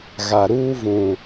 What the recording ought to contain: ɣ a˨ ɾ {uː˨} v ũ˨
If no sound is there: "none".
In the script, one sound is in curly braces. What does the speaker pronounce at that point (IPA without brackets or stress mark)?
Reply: uː˦